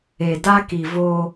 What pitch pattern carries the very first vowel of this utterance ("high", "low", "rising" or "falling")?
low